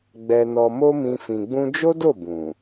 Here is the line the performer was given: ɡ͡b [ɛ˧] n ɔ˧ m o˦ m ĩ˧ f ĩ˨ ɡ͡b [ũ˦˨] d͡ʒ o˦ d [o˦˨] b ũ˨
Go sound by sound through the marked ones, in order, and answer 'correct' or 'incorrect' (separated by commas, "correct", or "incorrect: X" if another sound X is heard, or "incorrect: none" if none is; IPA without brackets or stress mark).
correct, incorrect: ũ˧, correct